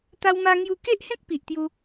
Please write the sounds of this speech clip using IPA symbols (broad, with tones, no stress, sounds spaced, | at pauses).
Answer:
t̪ a˧ w m a˧ ŋ j u˧ k e˦ ʔ h ẽ˦ k̚ p i˨ ʔ t̪ j u˧